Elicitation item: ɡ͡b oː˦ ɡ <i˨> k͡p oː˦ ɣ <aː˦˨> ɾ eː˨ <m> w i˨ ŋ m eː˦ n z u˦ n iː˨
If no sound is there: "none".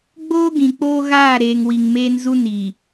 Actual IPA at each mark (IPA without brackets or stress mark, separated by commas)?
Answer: ĩ˨, aː˦˨, ŋ